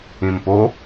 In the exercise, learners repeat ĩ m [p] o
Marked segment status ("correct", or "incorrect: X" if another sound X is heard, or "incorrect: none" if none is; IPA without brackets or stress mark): correct